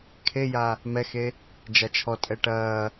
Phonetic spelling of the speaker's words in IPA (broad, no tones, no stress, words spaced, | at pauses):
kʰeja | mɛxe | d͡ʒat͡ʃʰɔ tʼɛʈɐː